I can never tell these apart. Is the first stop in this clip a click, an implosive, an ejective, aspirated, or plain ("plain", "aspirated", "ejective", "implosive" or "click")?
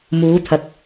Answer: aspirated